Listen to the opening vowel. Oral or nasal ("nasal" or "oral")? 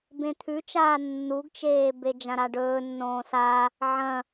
nasal